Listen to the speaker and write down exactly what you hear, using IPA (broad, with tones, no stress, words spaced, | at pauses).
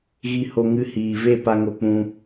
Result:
ɣi˦ho˦ ŋɨ˧ hiː˨ve˦˨ pa˦ŋo˧k͡pũ˧